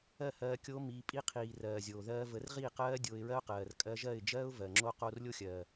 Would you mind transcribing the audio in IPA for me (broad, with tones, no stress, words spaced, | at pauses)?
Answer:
ɜ˦˨hɜː˧ kʲo˦mi˧ pʼi˧qʰiː˨ rɜː˨zʲoː˨ðɜː˧ və˨˦rʁiː˦˨qɜː˦ dʲoː˧ɪ̯ɹɜ˦ʊ̯qɜː˨r kʼɜ˧ʒɜ˦˨ɪ̯d͡ʒɜː˦ʊ̯ vɜ˨ŋ͡ǁo˦ qoː˧rlʲo˦xʲɜː˨